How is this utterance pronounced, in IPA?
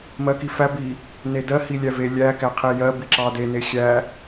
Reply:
m ɜ k i f æ b i | n e d ɜ h i lʲ æ v e lʲ æ k æ qʰ e j ɜ b i ǁ ɑ d e n e xʲ æ

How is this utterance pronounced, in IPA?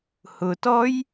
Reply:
h ʊ t ɔ j

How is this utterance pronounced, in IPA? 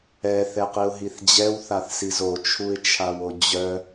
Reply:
ɛ θ ɛ q i ʊ̯ ɦ i θ d͡ʑ ɛ w θ a θ s i z o t͡ʃʰ u ɪ̯ t͡ʃʰ a w o d͡ʑ œ

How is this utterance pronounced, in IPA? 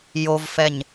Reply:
j o v f ɛ ɲ

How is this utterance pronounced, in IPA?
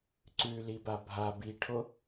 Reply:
ǀ ʉ l i b a bʱ a b i ʈʰ o

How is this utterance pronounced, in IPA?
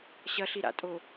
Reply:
ɕ ɐ ɬ i ɾ a̰ tʼ o

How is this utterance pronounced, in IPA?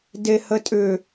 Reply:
d e h ə tʼ ʏ

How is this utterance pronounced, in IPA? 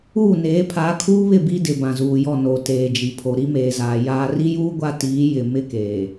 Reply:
uː˦˨ n eː˨˦ pʰ aː˨˦ kʰ uː˦ β ɪ˦˨ b i˦ d ɪ˨ b ã˨ z uː˨ j ɔ˦˨ n o˨ t eː˨ d͡ʒ i˨ pʰ o˨ ɾ i˦ m eː˨ z aː˨ j aː˨ r i˦ j uː˦ ɡʷ a˦ t iː˨˦ j ɪ˨ m ɪ˦ k eː˨

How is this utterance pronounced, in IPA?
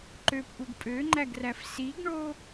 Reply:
ǃ ø p ʔ u ɡ pʼ ø ŋ͡ǃ æ ɡ r æ f s i ɡ ɳ o

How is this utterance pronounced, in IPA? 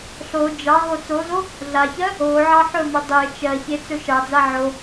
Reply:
ɬ o d͡ʒ ɑ ɦ o t͡s o z o | ɮ a ç ɜ | o ʕ ɑ ħ ɵ m ɵ dˤ e t͡ʃ ɜ ç e t͡s ɵ ʃ ɑ d͡z a ʕ o

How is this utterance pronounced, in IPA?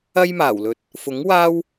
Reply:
ɐ˥ j m aː˨˩ w l ɵ˨˥ t̚ | f ʊ˨˥ ŋ w aː˥ w

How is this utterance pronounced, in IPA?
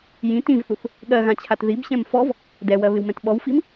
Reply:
j ĩ t ĩ v θ u θ | ɠ ɜ ɣ ã t͡ɕʰ a t ð i b ɕ ɛ̃ m f ɔ v | d ɛ w ɜ β ɪ w m ɛ̃ t ɓ ɔ w f i m

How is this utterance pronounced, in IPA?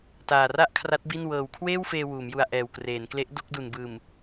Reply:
t aː˨˩ r a˥˩ ʔ kʰ r a˦˥ t̚ b i˥˩ n w ɤː˨˩ w kʰ w eː˥˩ w f eː˧ w uː˩˦ m j u˧ a̯ ʔ ɛː˨˩ w k r eː˩˦ n k l e˦˥ ʔ d o˥˩ k̚ d u˨˩ n b ɯː˨˩ m

